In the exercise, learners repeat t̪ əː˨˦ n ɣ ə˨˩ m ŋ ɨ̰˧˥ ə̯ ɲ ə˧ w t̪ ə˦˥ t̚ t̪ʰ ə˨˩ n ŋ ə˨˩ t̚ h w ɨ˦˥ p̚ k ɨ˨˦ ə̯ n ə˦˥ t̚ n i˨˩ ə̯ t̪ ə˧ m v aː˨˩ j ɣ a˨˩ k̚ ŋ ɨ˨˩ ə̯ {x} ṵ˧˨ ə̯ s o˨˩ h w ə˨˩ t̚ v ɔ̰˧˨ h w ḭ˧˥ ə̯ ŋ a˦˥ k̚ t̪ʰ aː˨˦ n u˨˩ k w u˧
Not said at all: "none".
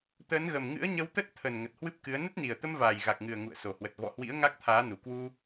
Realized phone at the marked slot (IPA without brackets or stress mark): ŋ